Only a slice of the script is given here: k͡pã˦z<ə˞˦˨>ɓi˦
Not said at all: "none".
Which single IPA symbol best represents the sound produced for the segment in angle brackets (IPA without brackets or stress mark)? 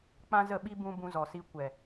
ə˦˨